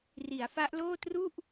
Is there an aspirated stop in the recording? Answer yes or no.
no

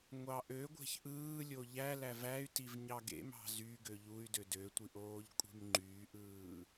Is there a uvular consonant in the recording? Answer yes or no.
no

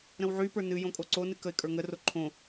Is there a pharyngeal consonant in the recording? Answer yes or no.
yes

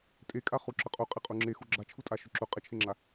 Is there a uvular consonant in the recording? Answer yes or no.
yes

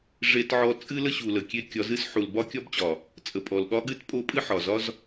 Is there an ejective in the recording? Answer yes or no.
yes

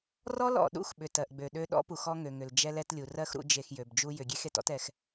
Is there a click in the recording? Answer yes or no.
no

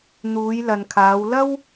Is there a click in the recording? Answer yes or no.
no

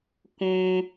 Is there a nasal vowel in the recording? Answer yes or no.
yes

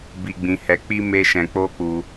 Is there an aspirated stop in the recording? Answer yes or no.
no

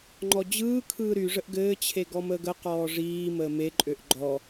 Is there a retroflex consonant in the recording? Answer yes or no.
yes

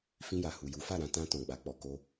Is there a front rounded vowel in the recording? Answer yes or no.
no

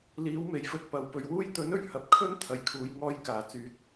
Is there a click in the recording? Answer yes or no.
no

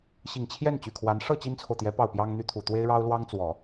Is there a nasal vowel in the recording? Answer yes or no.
no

